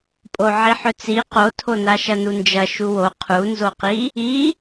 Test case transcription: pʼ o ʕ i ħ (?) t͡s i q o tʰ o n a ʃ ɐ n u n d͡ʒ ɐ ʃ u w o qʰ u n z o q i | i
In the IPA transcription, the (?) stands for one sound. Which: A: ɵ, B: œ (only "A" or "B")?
A